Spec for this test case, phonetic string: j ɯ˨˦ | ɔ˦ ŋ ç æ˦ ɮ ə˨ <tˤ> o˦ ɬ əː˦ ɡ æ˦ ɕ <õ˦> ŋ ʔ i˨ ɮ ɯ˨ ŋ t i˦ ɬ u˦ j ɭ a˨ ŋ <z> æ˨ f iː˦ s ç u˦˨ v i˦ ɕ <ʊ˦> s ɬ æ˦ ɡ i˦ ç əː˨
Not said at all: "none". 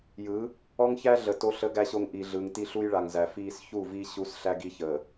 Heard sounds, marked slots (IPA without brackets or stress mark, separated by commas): t, o˦, z, u˦